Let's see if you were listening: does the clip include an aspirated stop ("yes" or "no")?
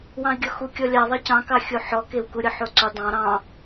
no